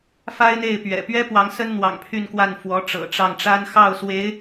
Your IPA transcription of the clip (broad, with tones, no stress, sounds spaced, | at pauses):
f a˥ ɪ̯ n̪ e˥˩ ɪ̯ p ɥ ɛ̰˨˩ p ɥ ɛ˥ p w ɑ˧˥ ŋ s ə˥ n n̪ w ɑ̰˨˩ ŋ pʰ y˥˧ n k w a˥˩ n f w ɔ˧˥ ʈ͡ʂ ɤ̰˨˩ ʈ͡ʂ ɑ˥˩ ŋ ʈ͡ʂ a˥ n x ɑ˥˩ ʊ̯ s w e˧˥ ɪ̯